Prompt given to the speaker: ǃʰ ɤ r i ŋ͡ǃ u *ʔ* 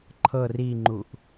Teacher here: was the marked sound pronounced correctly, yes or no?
yes